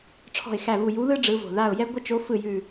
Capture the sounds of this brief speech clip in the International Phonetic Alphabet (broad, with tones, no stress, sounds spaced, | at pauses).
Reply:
ʈ͡ʂʰ ɔ̤˦˨ ɪ̯ x æ˦˨ v u˦˨ j u˧˥ ð ɯ˥ ɖ͡ʐ ɯ˧˥ v o̤˨˩ ð a˦˨ ʊ̯ j ɛ˥ ɡʷ ɪ˥ t͡ʃ o˧˥ f ɯ˦˨ j ʉ˦˨